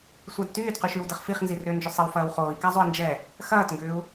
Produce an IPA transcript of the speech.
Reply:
sʷadtyːdqy ʃywdəχfiχnzi rʏːnd͡ʒʏsˤɪw fɐːwχoːi̯ka zˤoi̯nd͡ʒɛ | xɐːtŋɡʏːu̯

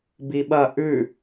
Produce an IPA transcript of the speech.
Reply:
biɓɐ ʔʉ

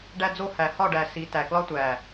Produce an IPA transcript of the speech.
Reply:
ɖæ˧d͡zo˧hæ˨hɒ˦˨ ɖæ˨si˨ tæ˨klɒ˦ tʷæ˨

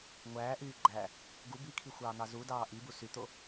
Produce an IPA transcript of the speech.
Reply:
ŋʷæːʔyː ɡ͡ǃæ | ɡu bikʰixʷɑːn̪ɑ zudɑː ʔibu syt̪o

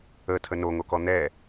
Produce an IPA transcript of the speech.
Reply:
ətʰə noŋokɔ n̪ɛ

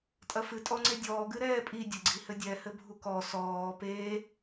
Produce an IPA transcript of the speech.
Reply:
tʼɐfɨ tʼɔŋ͡ǀedʲɔː ɡɨɾɛːpʼi dʲɐɡ͡ǀihɘdʲɛ hɘbʱukɔ sɔː peː

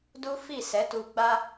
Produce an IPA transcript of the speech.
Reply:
du˦fi˦˨ sɛ˨˦tu˧ɡ͡ba˦

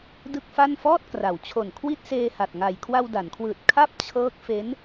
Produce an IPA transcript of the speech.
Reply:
dɯ˥˩k̚fa˥˩n fɔː˥˩t̚kra˩˦wt͡ɕʰo˨˩n kʰwi˥˩t̚seː˧ha˨˩t̚ŋa˨˩j kʰwa˧wda˩˦nkʰwɯː˨˩t̚ kʰa˥˩p̚t͡ɕʰɤː˦˥k̚ fe˦˥n

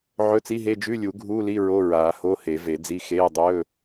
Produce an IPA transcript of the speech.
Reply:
ʕɵ˧˥˧t͡si˧˥˧ɦe˧˥˧ d͡ʒʉ˧˥˧lʲu˨˩˦ ɡʱuː˧˥˧li˧˥˧ ɹo˧˥˧ɹaː˨˩˦ ho˧˥˧he˨˩˦ve˨˩˦d͡zi˧˥˧ xeː˧˥˧dˤɵː˧˥˧

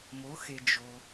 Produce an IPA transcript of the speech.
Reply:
mo˩˧xe˩ d͡ʒo˩

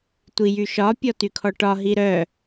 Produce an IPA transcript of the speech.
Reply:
tʷijyʃɒ pʲɔtykʰɔʈɒ ɦiɾœ

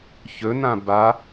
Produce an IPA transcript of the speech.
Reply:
çɵ nãba

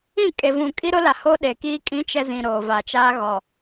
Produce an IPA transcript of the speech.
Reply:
ĩ˦˨kʼe˨vũ˨ kʼi˦ɾʊ˦la˨ho˦ ɗe˨kiː˦ kʼĩ˦ t͡ʃɛ˦zĩ˨ ɾoː˨ va˨t͡ʃaː˦ɣɔ˨

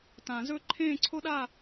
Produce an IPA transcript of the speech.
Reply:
tã˨˩˦zɵ˦˨ ǃʰẽː˦˨ǀʰo˦ɗaː˦˨

